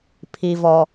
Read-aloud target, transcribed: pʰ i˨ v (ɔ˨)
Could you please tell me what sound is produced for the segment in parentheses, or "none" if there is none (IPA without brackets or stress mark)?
ɔ˨